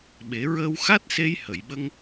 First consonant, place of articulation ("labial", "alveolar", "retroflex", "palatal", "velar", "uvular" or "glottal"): labial